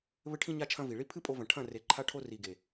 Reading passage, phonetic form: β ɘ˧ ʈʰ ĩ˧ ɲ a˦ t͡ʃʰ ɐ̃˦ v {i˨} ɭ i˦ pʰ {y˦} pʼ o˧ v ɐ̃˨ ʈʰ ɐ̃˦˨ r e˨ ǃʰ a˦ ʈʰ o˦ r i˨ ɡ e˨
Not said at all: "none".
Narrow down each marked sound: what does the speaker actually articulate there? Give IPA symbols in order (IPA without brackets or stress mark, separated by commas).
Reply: i˨, ɨ˦